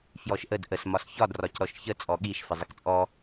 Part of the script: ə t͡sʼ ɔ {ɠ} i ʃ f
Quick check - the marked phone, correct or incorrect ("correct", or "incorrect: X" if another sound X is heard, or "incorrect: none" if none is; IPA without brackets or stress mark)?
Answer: correct